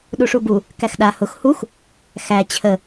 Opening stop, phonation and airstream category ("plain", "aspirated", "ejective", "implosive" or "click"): implosive